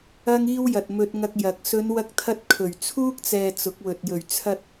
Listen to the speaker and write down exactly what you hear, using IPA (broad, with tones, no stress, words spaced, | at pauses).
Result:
ɐ˥ŋiː˥wjɐ˨t̚mɵ˧t̚ ŋɐ˧k̚jɐ˨˥k̚ sɵ˨˧nwɐ˧k̚t̪ʰɐ˧t̚ kʰɵ˨˩ɥt͡sʰuː˥k̚t͡sɛː˨ t͡sʊ˨˥k̚wɵ˨t̚ jɵ˨˩ɥt͡sʰɐ˧t̚